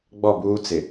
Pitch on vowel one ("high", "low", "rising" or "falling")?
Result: falling